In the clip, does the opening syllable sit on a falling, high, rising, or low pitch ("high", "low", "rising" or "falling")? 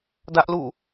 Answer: high